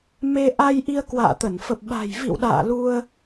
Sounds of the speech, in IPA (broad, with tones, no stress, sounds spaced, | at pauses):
m e˧ ʔ a˧ j ʔ i˧ ə̯ k w a̰ː˧˨ t̪ ə˧˩ n f ə˨˩ p̚ ɓ a̤˨˩ j v ḭ˧˨ w ɗ a̰ː˧˨ l u˧ ə̯